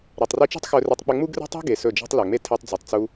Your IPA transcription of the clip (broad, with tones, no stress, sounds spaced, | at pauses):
ɾ e˨ tˤ r i˧ t͡ʃ i̤˦ tˤ x ɵ˧ r i˧ tˤ k͡p ɘ˧ ŋ͡m u˦ ɡ r e̤˦ tˤ e̤˦ ɡ e˨ s ɵ˦˨ d͡ʒ i̤˦ tˤ l ɵ˨ ŋ͡m e˦ tʰ e˧ tˤ d͡z u˨ tˤ t͡s u˧